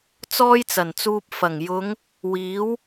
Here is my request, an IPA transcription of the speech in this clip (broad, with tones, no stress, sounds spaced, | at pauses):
t͡s ɔː˥ j t͡s ɐ˨˩ n t͡s uː˧ p̚ f ɐ˨˩ ŋ j ʊ˨˧ ŋ | w iː˨˥ w